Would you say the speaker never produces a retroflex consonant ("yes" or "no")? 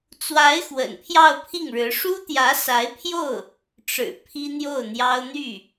no